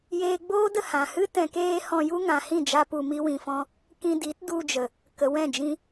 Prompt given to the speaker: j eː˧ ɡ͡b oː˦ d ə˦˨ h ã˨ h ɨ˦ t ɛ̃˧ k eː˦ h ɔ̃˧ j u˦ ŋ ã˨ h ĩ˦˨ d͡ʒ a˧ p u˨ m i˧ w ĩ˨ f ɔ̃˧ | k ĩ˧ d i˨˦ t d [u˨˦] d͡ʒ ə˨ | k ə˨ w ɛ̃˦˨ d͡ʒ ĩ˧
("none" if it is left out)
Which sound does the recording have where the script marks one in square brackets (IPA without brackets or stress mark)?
u˧